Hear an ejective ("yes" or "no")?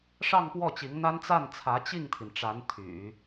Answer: no